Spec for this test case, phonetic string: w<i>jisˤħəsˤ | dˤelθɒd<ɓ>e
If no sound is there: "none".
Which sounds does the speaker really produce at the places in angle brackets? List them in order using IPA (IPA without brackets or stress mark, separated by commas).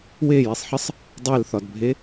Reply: e, bʱ